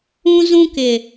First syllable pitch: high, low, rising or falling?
high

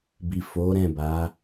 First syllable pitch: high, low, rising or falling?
low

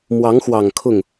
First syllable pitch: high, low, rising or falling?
rising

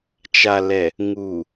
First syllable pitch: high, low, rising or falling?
low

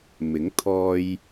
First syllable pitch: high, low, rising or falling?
rising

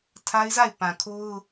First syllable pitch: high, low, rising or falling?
high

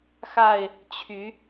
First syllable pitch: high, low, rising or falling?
falling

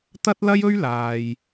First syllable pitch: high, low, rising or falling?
high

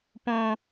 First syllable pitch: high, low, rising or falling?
high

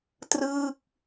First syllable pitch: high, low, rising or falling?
falling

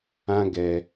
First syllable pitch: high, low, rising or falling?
high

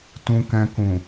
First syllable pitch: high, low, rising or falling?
low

